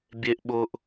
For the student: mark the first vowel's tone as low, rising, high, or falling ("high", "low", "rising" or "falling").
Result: high